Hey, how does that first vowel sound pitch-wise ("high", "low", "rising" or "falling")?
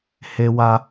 high